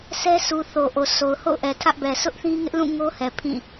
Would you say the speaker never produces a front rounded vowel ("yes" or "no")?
yes